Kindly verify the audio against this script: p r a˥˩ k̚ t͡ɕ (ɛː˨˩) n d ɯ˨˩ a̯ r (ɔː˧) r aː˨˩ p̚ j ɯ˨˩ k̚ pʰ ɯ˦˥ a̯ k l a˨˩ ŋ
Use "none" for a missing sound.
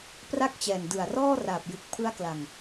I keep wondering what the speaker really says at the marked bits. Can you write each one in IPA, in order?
ɛː˨˩, ɔː˥˩

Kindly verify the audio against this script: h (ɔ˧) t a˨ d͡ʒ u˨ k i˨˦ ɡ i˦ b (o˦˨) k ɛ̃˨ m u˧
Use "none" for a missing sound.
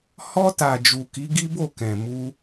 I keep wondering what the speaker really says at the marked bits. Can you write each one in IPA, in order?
ɔ˧, o˦˨

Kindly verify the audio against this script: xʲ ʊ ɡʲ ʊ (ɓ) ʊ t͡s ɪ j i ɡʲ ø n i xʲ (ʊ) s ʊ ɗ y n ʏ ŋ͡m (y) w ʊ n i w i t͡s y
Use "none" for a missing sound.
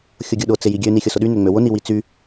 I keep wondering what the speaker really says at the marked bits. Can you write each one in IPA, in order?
ɗ, ʊ, ø

